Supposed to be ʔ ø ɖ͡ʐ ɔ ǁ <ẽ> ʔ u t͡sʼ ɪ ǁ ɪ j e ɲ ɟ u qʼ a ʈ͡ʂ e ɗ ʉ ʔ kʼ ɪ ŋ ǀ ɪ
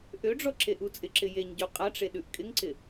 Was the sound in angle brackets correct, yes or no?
no